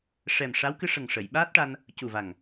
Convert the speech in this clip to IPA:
ʂ ɛ˨˩ m ʂ a˧˥ w k ɨ˧ ʂ ə˨˩ ŋ ʂ ə˨˩˨ j ɓ aː˦˥ t̚ ʈ a˧ n | c u˨˩ v a˨˩ ŋ

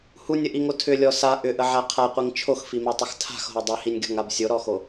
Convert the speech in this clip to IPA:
h u nʲ ə ʔ i ŋ o tʰ ʏ lʲ ɔ s a ʔ ʏ ʔ ə ʕ a qʰ a qʷ i ŋ t͡ʃʰ o x f i m a tˤ ə x tʰ a̤ x ɦ o dˤ i h i nʲ ɡʲ ɔ̤ ŋ a b sʲ o ɾ ɔ x o

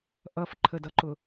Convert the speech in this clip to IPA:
ʔ ʌ f ǃʰ ə d ʌ ǃ ʊ

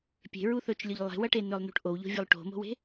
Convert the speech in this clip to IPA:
pʲ e̤ ɹ u θ ɵ t͡ʃ lʲ ɵ ʎ lˠ e̤ w ɐ ʈ e n ɵ lˠ n ṳ ʈ ʔ o w ʎ o̤ vʲ ɵ lˠ ʈ o̤ m o̤ w e̤

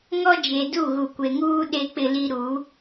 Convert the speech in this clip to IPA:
ŋ ɔ˦ d͡ʒ e˨ d u˦˨ ɣ u˨ kʷ e˨ ŋ uː˦ ɗ e˦ k͡p ɪ˦ l i˦ ɾ u˨˦

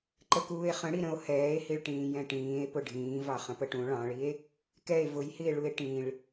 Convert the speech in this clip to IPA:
ǃ ə k uː e̯ χ ə̃ ɽ i ɾ ə̃ o̯ h ɛː e̯ h i ɭ ʈ ĩː j ɛ̃ ʈ ĩː e̯ p ʊ ɖʱ ĩː v ɑ χ ə̃ p ə ʈ ũ ɭ ɑ̃ ɭ i e̯ | k ɛ e̯ v ʊ j h i e̯ ɭ u e̯ ʈ ĩ ɭ

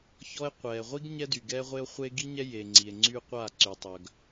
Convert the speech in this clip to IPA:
ç ɔ˦ e̯ qʷ ɛː˨ ʁʷ i˦ ɡ ɲ ɛ˦ d y˨ ɡ ɛː˦ ʁʷ e˦ o̯ χʷ e˦ ɡ i˦ ɲ ɛ˦ j e˨ ŋ͡ǀ i˨ e̯ ŋ͡ǀ y˦ qʷ a˦˨ ǀ y˨ tˤ œ˨ ɡ

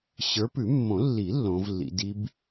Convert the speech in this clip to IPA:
ɕ ə˞˨˦ p ʉ˨˩˦ mː õ˨˩˦ lː i˨˩˦ lː õ˨˦ v lː ḭ˨˦ d i˦˥ b

